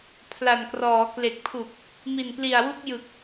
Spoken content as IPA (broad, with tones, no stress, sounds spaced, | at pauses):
pʰ l a˨˩ n k r ɔː˩˦ k l e˨˩ k̚ pʰ u˨˩ k̚ | m i˨˩ n p l i˨˩ a̯ w u˥˩ k̚ j ɯ˨˩ k̚